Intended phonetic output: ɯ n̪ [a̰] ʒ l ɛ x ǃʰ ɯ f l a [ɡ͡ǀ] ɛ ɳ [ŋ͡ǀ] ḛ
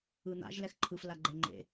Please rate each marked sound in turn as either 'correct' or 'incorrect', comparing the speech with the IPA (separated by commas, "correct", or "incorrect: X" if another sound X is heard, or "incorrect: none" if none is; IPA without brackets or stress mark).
correct, incorrect: ɡ͡ǃ, incorrect: ŋ͡ǃ